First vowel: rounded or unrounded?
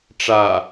unrounded